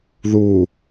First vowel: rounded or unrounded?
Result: rounded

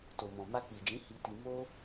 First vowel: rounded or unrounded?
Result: rounded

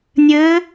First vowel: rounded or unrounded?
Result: unrounded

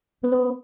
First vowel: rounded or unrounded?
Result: rounded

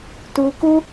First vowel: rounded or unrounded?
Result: rounded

